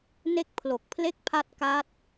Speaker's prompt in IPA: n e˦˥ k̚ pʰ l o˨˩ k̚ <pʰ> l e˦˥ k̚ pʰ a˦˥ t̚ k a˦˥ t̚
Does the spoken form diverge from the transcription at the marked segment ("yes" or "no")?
no